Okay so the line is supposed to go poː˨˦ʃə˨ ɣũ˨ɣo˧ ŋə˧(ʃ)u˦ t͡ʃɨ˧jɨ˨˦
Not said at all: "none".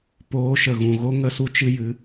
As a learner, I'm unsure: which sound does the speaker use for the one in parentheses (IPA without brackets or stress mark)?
s